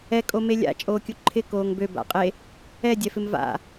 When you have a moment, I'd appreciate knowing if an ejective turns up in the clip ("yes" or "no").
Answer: yes